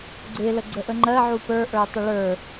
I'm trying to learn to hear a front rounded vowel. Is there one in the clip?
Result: no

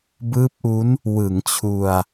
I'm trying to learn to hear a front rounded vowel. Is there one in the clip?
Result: no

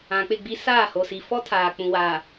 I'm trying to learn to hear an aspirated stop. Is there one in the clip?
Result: yes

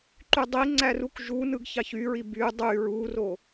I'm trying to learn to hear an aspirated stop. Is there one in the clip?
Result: no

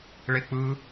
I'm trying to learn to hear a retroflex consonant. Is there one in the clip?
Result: yes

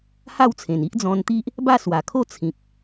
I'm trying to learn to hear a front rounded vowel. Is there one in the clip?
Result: no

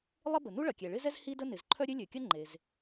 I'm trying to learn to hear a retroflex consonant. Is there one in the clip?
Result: yes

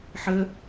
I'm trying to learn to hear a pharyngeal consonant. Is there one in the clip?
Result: yes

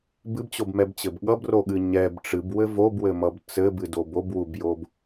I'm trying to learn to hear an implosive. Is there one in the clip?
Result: yes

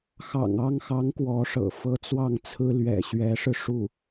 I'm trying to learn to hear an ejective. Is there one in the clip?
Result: no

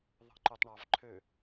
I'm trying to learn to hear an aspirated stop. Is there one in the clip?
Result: yes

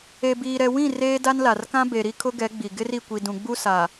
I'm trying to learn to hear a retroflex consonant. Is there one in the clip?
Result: no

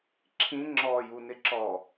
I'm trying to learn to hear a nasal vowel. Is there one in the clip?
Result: yes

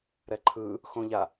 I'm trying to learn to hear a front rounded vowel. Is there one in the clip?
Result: no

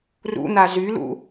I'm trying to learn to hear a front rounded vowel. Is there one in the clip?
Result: yes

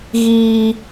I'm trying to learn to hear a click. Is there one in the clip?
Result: no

